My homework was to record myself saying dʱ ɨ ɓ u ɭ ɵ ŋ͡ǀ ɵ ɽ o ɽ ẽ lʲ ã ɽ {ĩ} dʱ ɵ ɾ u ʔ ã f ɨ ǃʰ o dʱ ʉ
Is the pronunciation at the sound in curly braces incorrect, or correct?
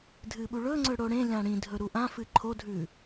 correct